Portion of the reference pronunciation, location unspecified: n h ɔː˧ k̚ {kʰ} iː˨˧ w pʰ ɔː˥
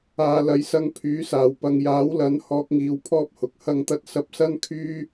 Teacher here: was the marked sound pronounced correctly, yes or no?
no